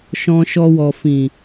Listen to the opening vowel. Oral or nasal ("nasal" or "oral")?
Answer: nasal